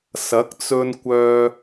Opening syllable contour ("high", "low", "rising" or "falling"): rising